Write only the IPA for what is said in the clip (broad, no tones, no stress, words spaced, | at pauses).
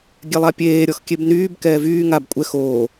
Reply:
ɡʲɛlˠapʲeː ɾʲɔxkʲebnyːb kɛːvyː ŋab kʷʼɛx oː